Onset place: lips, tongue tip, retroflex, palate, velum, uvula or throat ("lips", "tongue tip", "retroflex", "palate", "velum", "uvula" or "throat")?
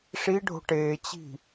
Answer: retroflex